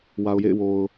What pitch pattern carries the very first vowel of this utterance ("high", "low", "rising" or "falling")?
low